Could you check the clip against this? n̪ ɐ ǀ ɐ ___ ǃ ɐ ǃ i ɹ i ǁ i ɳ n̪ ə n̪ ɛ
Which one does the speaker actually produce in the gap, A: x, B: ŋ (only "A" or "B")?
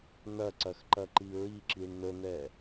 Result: A